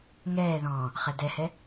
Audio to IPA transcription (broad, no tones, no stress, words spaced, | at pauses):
ŋɛːðɔ̃ː | χɛdɛhɛ